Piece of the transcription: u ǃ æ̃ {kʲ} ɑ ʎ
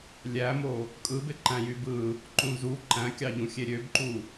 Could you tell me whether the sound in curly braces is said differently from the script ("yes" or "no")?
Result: no